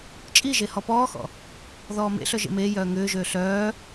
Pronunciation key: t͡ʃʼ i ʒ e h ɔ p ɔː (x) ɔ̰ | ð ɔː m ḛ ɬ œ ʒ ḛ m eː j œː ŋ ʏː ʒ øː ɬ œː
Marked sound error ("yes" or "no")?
no